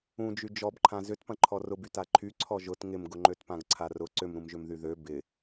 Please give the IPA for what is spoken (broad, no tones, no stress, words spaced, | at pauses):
ũd͡ʒy d͡ʒɔbǃʰã zʏtpɐ̃ ǃʰɔrʊby taǃʰy ǀʰɔʒʊt ŋɪmɡʊŋ͡ǃøtpãɡ ǀʰarʊ ǀʏmɾũmʒʏm ðyðø bɪ